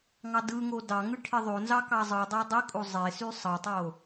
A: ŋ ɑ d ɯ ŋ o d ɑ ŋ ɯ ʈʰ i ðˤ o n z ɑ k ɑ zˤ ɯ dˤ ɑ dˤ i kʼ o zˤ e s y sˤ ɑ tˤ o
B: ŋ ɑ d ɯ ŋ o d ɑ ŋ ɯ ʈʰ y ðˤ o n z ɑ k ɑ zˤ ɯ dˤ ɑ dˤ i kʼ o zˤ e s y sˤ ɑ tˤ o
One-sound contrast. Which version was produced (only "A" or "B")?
A